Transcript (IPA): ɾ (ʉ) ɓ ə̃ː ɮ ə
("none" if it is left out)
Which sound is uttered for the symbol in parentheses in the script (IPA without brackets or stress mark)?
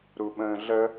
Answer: u